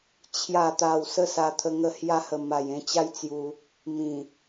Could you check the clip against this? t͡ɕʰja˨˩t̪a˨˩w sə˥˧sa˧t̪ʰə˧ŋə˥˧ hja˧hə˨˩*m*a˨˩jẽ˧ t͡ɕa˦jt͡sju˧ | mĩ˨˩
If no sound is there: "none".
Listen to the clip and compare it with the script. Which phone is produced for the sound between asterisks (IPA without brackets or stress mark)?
m